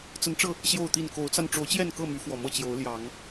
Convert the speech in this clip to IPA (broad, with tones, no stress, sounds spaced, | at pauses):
t͡s ə˨˦ n ʈ͡ʂ ɤ˧ | ɕ j o˥˨ ʊ̯ t̪ i˥˨ n k o˨˦ ʊ̯ t͡s a˧ n ʈ͡ʂ o˨˦ ʊ̯ t͡ɕ j ɛ˥˨ n k ɤ˥˨ m y˨˦ f w ɔ˨˩ m ɤ˥˨ t͡ɕ j o˨˦ ʊ̯ l j ɑ˨˦ ŋ